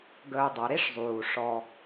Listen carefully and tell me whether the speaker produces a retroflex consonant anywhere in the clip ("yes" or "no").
yes